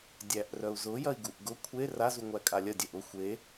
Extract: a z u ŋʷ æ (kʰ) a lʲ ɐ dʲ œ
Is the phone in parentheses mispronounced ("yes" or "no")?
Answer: yes